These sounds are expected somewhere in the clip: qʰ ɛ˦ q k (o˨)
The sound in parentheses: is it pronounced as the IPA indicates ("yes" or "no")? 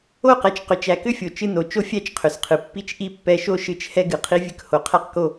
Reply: no